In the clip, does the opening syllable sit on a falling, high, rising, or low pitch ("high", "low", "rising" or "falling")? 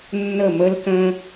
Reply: falling